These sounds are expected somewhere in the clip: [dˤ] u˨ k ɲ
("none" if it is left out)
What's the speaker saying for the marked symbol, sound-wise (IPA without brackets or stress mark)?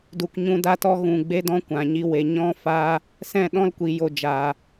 d